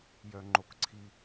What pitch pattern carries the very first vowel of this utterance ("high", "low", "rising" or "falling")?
high